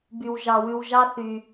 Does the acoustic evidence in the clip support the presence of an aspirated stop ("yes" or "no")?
no